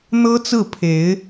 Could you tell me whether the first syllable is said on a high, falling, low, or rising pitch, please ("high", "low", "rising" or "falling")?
high